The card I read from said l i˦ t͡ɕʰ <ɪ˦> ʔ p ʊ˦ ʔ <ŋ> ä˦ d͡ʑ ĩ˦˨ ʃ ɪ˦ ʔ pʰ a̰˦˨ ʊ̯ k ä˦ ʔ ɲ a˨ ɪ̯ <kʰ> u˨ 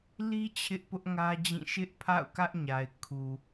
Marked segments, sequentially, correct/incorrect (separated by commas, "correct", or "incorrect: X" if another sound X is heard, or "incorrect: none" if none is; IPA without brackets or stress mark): correct, correct, correct